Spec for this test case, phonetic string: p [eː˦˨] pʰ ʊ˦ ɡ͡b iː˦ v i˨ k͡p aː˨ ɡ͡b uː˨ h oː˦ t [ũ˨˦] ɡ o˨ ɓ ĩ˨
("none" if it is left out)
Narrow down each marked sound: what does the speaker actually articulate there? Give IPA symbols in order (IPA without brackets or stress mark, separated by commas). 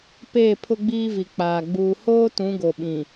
eː˦˨, ũ˨˦